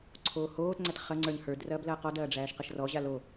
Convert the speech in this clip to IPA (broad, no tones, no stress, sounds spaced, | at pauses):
ǀʰ oː h oː t ŋ͡ǀ æ t χ ɐ ŋ͡ǀ ə˞ ɲ h ə˞ d r ɐː b l ɐː q ɔ d ɐː ɖ͡ʐ æː ʃ q ɐ ʃ r ɔ ʑ a l o